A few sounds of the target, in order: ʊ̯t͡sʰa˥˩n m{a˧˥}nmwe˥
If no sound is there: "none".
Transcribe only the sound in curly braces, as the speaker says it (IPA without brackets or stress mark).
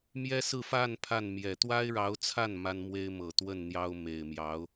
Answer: a˥